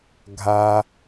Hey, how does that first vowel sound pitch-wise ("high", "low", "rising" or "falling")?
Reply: low